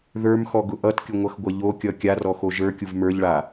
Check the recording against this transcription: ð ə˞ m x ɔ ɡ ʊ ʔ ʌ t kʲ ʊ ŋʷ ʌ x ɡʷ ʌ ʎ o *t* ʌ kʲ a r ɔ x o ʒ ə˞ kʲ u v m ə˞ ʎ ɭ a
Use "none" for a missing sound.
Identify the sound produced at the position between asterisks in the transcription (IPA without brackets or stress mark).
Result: kʲ